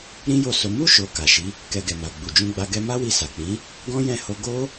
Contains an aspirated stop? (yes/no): no